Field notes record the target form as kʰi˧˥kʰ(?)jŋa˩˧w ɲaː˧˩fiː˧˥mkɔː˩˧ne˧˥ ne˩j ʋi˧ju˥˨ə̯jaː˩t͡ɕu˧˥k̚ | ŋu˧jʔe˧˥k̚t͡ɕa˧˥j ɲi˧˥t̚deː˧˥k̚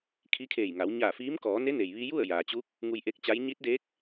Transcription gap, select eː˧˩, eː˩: eː˧˩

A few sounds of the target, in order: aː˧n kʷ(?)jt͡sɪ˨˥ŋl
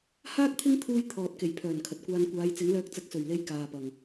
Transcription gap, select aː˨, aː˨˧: aː˨˧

